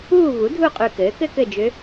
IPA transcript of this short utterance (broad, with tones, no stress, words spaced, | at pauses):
uː˦˨ vu˩˥dʱu˦˨qʼʉ˨˩ kɘː˩˥kɘ˥kɘ˦˨d͡ʒʏ˧˥